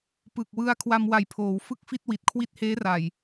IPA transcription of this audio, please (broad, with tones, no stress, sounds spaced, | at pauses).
p ɯ˨˩ k̚ w ɯ˧ a̯ kʰ w a˧ m w a˨˩ j pʰ oː˩˦ w f ɯ˥˩ k̚ f i˥˩ t̚ w i˨˩ t̚ kʰ w i˥˩ t̚ h eː˦˥ r a˨˩ j